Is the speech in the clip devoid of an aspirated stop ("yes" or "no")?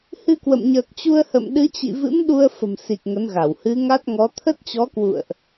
no